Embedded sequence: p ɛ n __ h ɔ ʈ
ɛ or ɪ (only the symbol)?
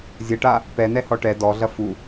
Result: ɛ